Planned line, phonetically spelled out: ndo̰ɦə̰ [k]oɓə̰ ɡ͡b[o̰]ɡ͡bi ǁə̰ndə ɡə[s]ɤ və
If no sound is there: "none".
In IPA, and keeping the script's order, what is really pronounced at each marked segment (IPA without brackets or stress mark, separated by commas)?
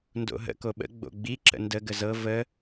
k, o̰, z